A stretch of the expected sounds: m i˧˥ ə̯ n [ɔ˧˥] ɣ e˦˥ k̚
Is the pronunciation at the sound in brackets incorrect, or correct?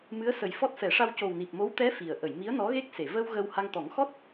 correct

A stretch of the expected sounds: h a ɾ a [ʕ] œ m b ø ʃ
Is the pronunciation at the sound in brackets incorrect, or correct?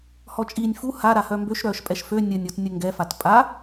incorrect: h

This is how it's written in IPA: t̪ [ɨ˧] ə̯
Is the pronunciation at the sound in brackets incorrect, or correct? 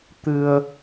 correct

